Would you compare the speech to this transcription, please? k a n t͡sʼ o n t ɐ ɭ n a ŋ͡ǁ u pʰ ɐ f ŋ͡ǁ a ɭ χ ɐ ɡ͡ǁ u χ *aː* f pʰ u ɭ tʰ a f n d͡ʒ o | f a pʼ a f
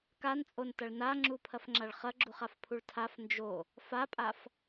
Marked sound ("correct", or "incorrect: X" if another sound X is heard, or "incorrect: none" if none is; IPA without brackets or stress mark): incorrect: a